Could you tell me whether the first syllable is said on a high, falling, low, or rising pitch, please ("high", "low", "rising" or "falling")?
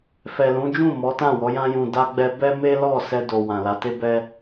low